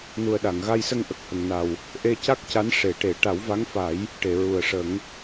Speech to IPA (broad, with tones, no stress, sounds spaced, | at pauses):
n u˨˩ ə̯ ɗ a˨˩˨ ŋ ɣ a˧ j s ə˧ ŋ ʔ ə˨˩ k̚ h ə˨˩ ŋ n a˨˩ w | ʔ e˧ c a˦˥ k̚ c a˧˥ n ʂ e˨˩˦ ʈ e˨˩˦ ʈ a˨˩˦ w v a˧˥ ŋ f a˨˩˦ j | ʈ e˨˩˨ ɹ u˨˩ ə̯ ʂ ə˨˩˦ ŋ